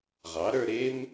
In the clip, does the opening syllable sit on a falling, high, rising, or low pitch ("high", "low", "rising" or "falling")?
rising